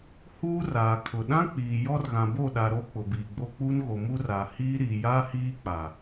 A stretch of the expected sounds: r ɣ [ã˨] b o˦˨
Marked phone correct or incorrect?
correct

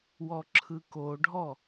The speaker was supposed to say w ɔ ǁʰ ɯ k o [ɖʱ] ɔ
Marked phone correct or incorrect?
correct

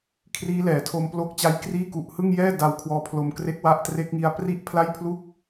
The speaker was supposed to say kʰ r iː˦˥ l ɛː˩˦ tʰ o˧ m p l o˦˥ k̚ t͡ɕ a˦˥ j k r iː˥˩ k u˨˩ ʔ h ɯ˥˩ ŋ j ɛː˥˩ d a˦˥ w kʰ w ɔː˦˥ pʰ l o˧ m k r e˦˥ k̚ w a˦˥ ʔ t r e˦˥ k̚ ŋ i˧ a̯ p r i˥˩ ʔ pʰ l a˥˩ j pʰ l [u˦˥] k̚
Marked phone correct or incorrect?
incorrect: u˥˩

